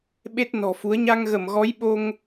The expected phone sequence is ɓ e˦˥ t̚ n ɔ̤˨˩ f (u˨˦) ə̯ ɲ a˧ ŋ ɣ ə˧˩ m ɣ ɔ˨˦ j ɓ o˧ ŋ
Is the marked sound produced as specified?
yes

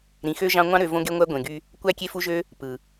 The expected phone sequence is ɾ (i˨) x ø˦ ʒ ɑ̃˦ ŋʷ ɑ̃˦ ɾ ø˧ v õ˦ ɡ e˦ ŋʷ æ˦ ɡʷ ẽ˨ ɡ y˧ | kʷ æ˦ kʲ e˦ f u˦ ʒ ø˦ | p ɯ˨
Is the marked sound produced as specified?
no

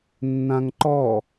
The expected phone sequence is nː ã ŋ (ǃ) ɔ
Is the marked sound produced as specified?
yes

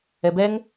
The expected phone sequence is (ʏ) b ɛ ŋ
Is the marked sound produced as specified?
no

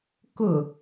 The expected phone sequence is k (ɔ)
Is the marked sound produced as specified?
no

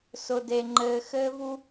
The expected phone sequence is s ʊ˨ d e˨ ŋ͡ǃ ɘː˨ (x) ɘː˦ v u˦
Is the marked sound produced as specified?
yes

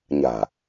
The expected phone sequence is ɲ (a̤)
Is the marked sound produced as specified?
yes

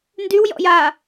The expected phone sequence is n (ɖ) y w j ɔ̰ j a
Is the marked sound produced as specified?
no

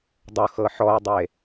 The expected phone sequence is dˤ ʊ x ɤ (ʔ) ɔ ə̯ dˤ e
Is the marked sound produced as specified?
no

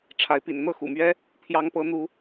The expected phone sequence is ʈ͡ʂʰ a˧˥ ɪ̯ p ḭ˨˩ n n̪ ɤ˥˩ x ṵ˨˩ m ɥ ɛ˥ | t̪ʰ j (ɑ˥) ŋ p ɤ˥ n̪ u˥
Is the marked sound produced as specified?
yes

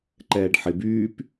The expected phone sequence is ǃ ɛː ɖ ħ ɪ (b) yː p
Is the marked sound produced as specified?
yes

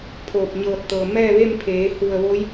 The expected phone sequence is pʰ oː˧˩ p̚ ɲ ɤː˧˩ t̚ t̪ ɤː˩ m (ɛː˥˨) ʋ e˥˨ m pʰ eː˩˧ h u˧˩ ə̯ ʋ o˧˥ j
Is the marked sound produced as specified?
yes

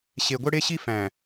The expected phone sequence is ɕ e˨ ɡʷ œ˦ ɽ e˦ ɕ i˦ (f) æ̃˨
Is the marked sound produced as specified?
yes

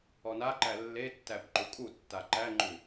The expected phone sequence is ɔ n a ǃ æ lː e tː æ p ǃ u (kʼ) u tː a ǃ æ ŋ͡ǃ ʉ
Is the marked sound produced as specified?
yes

